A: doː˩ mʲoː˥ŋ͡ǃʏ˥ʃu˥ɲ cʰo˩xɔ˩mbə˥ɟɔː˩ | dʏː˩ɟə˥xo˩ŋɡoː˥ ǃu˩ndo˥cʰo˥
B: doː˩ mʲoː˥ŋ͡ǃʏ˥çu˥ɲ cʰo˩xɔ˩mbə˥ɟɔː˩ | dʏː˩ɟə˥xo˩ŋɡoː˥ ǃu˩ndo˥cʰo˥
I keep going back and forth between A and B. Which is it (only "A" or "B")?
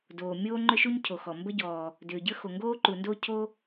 A